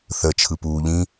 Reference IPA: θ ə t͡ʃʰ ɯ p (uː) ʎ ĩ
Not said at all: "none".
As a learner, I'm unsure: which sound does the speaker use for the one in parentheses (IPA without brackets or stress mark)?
uː